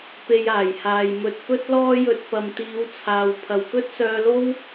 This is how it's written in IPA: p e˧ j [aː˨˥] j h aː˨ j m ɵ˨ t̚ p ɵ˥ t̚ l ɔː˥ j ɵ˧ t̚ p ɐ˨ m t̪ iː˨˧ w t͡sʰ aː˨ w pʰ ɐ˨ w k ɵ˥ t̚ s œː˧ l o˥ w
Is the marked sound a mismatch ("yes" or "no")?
yes